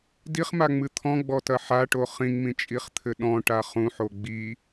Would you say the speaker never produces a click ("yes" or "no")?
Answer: yes